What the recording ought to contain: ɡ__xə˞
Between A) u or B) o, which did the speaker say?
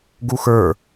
A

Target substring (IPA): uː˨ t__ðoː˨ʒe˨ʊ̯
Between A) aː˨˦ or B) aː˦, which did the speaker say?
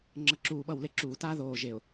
B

